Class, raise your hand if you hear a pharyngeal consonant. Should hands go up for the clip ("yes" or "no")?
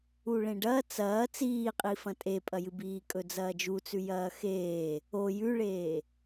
no